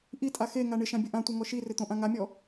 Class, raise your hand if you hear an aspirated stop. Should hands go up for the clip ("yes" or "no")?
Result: no